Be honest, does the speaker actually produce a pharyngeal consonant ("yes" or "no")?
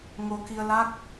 no